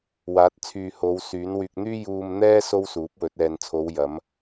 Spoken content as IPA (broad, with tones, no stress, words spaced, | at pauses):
waː˨˥t̚t͡sʰyː˧ ho˨˧wsyː˨˥n wyː˨k̚n̪yː˥ juː˧mn̪ɛː˥ so˥wsuː˨˥p̚wɵ˨˥t̚ ɛː˨nt͡sʰo˨˧w jɐ˨˥m